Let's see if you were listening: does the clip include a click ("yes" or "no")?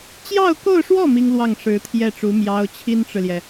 no